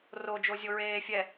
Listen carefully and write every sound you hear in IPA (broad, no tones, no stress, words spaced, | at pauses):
ro d͡ʒozʲoɹeːfʲɛ